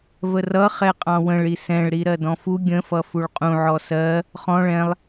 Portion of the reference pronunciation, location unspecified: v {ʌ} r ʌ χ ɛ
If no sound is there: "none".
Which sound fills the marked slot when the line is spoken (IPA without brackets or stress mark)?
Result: ə